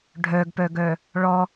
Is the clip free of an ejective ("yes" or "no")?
yes